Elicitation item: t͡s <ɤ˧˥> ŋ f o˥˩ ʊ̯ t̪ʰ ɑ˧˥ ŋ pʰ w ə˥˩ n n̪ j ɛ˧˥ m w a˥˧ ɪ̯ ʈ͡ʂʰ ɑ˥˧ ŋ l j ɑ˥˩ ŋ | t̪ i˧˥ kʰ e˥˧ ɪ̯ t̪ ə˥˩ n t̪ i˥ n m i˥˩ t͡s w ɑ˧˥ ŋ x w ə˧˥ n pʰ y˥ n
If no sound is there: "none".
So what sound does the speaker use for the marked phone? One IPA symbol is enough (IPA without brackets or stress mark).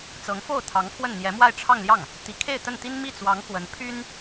ɤ˧˥